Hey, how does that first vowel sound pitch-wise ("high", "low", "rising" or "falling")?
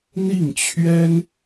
falling